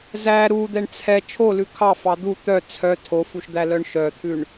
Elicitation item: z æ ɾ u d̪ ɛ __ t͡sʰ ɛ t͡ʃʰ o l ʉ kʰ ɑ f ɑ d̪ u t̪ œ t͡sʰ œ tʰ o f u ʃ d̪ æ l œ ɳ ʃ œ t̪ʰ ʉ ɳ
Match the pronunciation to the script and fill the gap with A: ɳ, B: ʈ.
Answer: A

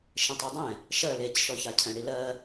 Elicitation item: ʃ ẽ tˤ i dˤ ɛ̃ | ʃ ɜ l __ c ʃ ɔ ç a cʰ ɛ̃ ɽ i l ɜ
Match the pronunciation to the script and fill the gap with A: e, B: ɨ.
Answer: A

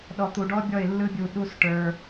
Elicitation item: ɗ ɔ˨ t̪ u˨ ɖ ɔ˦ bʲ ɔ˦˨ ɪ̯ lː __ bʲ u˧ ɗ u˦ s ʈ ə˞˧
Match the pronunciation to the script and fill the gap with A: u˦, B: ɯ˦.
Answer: B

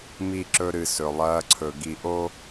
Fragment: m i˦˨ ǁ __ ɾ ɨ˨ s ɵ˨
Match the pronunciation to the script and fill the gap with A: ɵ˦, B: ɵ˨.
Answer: A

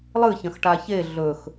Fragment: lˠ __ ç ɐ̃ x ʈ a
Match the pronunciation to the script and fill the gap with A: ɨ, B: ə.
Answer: A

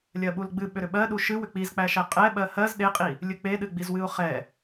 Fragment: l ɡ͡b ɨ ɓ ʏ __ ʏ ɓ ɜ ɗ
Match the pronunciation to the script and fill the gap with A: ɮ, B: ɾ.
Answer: B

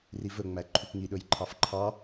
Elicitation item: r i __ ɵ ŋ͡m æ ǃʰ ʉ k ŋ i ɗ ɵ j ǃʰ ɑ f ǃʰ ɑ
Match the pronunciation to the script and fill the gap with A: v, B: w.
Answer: A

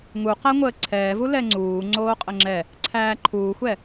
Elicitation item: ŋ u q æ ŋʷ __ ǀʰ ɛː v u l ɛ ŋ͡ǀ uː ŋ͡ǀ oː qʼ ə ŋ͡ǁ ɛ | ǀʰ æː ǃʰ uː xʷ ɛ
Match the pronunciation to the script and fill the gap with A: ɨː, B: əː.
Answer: B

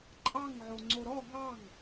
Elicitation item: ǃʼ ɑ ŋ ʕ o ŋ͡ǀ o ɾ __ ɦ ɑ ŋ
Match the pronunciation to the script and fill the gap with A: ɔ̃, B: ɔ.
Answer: B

